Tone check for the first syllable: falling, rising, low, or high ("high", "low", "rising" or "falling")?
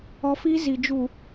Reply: high